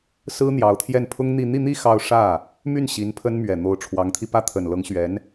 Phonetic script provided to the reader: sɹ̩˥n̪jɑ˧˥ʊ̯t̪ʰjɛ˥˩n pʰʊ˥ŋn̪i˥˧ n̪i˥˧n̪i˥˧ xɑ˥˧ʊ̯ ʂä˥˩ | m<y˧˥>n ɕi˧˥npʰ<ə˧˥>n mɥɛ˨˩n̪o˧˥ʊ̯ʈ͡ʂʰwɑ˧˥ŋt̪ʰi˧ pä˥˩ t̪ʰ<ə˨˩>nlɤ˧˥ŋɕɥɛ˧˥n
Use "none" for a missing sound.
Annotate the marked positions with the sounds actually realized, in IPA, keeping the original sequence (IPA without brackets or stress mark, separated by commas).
y˥˩, ə˥, ə˨˩